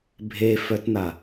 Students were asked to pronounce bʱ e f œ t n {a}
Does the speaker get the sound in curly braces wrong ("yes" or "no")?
no